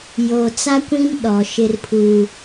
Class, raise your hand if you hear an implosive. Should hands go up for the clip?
yes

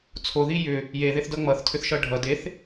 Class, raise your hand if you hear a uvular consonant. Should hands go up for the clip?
no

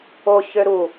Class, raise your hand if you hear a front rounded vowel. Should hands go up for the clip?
yes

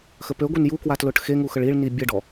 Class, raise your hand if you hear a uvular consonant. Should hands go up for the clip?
no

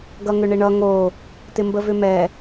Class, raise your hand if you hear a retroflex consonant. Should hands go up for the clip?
yes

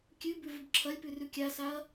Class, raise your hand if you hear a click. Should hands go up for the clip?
yes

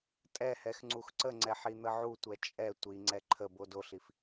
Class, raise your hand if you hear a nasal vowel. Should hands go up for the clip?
no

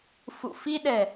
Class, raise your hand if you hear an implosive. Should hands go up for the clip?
yes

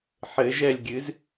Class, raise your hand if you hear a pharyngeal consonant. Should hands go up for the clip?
yes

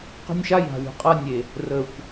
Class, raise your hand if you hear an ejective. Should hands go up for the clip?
yes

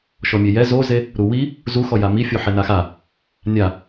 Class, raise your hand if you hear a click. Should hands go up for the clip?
no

